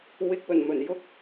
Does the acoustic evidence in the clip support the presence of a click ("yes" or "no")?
no